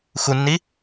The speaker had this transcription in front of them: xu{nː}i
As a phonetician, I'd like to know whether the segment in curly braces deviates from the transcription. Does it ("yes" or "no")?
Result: no